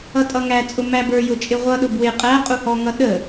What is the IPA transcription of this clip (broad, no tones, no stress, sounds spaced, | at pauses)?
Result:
ʌ tʼ ʌ ŋ æ t͡sʼ ʊ m æ b ə˞ j ʊ t͡ʃʼ ɪ ʁʷ ʌ ɗ ʊ b w ɪ qʼ æ qʼ u h ɔ ŋ ʌ ɗ ə